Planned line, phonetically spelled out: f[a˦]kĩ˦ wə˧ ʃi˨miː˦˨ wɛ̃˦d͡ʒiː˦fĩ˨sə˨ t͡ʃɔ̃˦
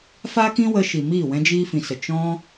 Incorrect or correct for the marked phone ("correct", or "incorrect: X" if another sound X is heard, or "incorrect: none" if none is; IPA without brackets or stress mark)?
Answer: correct